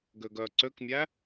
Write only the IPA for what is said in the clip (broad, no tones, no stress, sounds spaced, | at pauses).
ɡ ø ɡ œ ǀ ø k mʲ æ